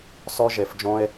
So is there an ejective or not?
no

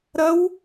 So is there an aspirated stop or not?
no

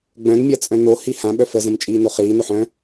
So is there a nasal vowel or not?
yes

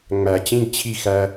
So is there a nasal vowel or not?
yes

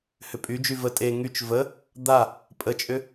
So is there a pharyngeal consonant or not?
no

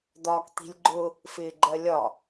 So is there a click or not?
yes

